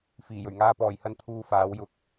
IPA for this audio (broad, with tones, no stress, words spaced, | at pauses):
fiː˨˩jɵ˨˩ɥŋaː˧ pɔː˨˩jhɐ˧n t̪ʰuː˧faː˨˥wjʊ˧k̚